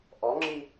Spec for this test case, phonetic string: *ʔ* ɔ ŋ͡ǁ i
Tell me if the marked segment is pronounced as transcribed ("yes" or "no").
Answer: yes